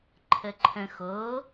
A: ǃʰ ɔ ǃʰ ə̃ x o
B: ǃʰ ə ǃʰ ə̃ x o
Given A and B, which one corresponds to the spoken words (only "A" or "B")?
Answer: B